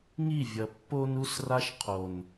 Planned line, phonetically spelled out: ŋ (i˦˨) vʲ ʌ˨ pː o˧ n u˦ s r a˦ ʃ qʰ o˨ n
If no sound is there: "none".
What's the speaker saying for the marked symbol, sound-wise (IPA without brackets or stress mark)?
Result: i˦˨